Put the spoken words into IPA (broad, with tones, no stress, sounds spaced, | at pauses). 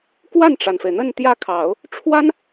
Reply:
k w a˥˩ n ʈ͡ʂ a˩ n f e˩ ɪ̯ n̪ ə˥˧ n t̪ j ä˥˩ kʰ ɑ˨˩˦ ʊ̯ | ʈ͡ʂʰ w a˥ n